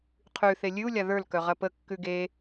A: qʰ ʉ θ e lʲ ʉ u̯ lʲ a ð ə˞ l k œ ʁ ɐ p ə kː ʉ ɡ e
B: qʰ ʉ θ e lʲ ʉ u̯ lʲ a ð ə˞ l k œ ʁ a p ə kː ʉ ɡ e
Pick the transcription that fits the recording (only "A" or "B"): A